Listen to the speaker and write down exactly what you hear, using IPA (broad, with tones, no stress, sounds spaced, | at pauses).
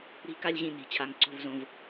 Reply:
ɾ i̤˧ k a˧ lʲ ʑ ĩ˧ n i̤˩ t͡ɕʰ a˧˩ ŋ ǀ o̤˥˩ v z õ˧˩ v